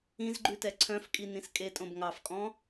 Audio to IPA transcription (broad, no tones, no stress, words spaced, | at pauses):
ĩzɡ͡ǃʉtɛ ǀʰœ̃fkʼi nĩskʼetʼõb ŋɑfkʼɔ̃